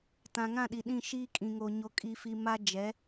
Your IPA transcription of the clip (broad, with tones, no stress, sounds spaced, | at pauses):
t ã˨ ŋ ã˦˨ ɗ i˨ ɗ ĩ˦˨ ʃ iː˦ kʼ ĩ˨ ŋ o˨ ɲ o˨ kʼ i˨ f i˨ m a˦ d͡ʒ ɛ˨˦